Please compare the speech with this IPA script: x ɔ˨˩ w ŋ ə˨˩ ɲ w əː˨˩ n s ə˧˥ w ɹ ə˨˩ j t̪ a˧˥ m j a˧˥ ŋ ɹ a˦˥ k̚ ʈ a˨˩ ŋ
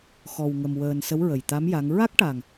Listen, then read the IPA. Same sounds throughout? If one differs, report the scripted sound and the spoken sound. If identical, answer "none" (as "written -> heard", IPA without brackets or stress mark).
ɲ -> m